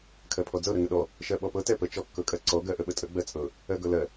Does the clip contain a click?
yes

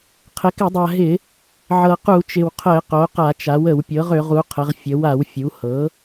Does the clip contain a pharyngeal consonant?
yes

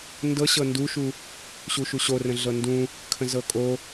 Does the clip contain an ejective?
yes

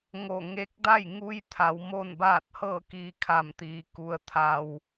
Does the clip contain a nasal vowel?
no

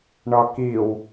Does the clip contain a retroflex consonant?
yes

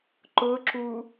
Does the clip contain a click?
yes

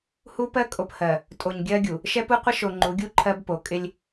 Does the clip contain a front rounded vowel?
no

